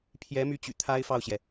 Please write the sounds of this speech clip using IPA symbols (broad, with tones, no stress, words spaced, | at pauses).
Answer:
pʰjɛ˧˥my˧˥t͡ɕy̰˨˩ t̪ʰa˥ɪ̯fɑ˥˩ʊ̯ɕjɛ˩